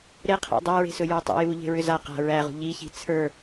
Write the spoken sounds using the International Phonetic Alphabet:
ɾ e qʰ æ̰ dˤ æ ɹ e̤ s ɵ j ə˞ tˤ ḭ j u ʎ e̤ ɹ ʏ z a q a̤ ɹ æ ʁ ṳ ʎ i ç i̤ t͡sʰ ə˞

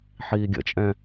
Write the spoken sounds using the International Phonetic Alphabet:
ħ iː ɡʲ ə̰ t͡ʃʼ ɛ̃

